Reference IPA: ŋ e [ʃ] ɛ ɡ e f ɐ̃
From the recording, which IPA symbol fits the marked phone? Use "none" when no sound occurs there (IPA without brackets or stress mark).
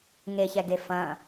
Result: ç